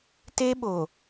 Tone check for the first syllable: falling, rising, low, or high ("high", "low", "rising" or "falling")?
high